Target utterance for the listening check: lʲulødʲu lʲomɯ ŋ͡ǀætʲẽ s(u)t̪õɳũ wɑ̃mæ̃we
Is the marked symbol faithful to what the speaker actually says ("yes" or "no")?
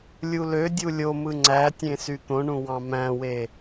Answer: no